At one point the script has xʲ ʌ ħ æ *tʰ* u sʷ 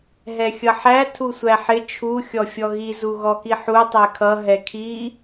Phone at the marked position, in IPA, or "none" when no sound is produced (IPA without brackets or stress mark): tʰ